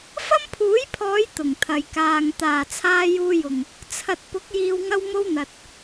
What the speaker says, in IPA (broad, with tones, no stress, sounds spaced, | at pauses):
f ɐ˥ m pʰ uː˨˥ j pʰ ɔː˨˧ j t̪ ʊ˨˩ ŋ t̪ʰ ɐ˨ j k aː˨ ŋ t̪ aː˨˩ t͡sʰ aː˧ j uː˧ j ʊ˨˩ ŋ | t͡sʰ ɐ˨ t̚ p ʊ˨˥ k̚ j iː˧ w ŋ ɐ˥ w m o˥ w n̪ ɐ˨ t̚